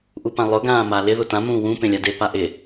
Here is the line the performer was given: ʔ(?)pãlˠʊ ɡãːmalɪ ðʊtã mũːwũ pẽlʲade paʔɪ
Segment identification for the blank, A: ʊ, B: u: B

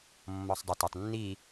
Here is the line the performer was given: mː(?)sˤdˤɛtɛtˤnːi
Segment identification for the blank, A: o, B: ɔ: B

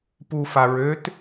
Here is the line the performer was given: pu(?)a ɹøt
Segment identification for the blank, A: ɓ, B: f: B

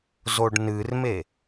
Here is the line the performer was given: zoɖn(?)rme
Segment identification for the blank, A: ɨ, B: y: A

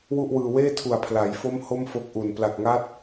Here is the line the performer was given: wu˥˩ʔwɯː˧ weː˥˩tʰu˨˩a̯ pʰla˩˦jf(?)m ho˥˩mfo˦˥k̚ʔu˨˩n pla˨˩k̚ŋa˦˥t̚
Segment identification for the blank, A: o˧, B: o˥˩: B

